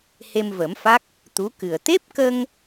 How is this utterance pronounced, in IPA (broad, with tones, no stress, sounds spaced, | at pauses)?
h e˧ m v ə˨˩˦ m f a˦˥ k̚ | t̪ u˧˥ k ɨ˨˩ ə̯ t̪ e˦˥ p̚ k ə˧ ŋ